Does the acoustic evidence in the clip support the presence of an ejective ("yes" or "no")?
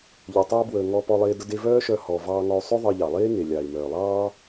no